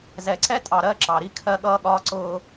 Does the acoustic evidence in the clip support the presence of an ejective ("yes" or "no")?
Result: yes